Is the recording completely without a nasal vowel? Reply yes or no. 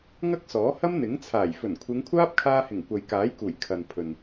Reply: yes